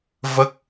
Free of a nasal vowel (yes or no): yes